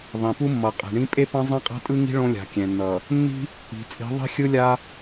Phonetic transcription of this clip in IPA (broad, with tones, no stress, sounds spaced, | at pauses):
ðˤ ĩ˨ p u˦ mː ʌ˨ qʼ e̤˨ ɳ ĩ˦ pʼ e˦ p ã˦ zˤ ɛ̃˦ qʼ a̤˦ tʼ ɯ˦ ŋ i̤˦ ɭ õ˦ lʲ a̤˨ kʲ ɛ̃˨ nː ʌ˨ | nː i̤˦ | i̤˨ t͡sʼ i̤˨˦ ðˤ i̤˦ xʲ ɯ˦ lʲ a˦